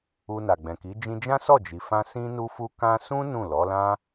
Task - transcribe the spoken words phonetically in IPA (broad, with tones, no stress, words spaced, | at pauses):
u˧na˨ ɡ͡bɛ̃˨ki˨˦ d͡ʒĩ˧d͡ʒã˦ sɔ˦˨d͡ʒi˨fã˧ sĩ˧nu˧fu˧ kã˧sũ˦ nũ˦˨lɔ˨˦lã˦